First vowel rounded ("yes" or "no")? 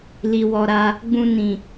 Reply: no